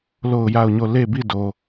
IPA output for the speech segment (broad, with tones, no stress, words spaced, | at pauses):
lo˦˨ʊ̯ja˦˨ʊ̯ɲo˦˨ le˦˨bi˦˨do˨